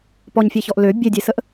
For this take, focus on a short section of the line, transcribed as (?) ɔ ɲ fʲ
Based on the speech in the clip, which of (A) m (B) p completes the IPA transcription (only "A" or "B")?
B